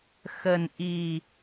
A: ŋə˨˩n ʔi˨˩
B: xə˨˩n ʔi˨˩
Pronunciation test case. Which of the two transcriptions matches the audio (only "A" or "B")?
B